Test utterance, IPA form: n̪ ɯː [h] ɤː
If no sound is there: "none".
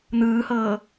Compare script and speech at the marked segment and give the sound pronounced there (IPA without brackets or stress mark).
h